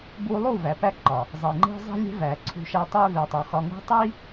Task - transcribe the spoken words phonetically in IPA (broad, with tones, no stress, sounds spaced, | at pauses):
b u˧ lˠ u˦˨ v æ˨ p æ˦ ǃ ɒ˨ | zˤ i˨ ŋ͡ǃ e̤˦ zˤ e̤˦ lʲ e̤˦ v æ˨ ǀʰ ṳ˧ ʃ æ˧ tˤ e˦ v e˨ tˤ o˨ x ɒ˧ ŋ ṳ˦ tˤ i˦